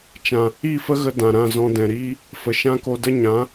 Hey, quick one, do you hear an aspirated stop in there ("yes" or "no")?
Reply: no